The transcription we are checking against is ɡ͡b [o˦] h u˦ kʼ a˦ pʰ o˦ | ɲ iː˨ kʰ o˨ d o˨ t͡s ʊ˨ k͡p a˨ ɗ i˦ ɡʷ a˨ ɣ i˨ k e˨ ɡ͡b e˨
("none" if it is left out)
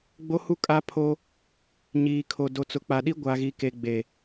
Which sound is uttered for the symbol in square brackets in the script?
o˦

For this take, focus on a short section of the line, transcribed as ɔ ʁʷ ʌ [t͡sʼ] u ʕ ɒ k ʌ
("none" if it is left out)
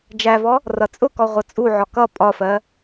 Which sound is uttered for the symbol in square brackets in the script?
t͡sʼ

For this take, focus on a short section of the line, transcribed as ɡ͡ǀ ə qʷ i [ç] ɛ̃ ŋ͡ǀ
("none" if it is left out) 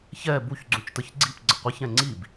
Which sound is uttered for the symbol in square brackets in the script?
ç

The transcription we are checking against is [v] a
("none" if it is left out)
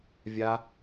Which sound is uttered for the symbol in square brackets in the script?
vʲ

